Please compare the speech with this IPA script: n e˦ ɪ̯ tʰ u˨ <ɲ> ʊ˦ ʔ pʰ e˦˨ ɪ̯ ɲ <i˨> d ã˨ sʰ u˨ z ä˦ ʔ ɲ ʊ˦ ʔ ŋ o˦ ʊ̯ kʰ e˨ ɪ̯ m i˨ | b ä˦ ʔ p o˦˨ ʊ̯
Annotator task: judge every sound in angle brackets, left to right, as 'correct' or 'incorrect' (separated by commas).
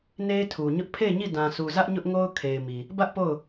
correct, incorrect